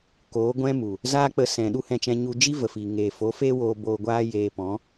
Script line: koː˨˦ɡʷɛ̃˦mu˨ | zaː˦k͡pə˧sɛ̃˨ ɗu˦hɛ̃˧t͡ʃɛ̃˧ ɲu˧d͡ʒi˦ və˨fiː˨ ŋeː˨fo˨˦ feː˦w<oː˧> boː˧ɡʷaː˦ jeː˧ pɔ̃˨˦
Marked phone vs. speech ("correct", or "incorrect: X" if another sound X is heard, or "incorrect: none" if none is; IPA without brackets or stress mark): correct